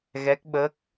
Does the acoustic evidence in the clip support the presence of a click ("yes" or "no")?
no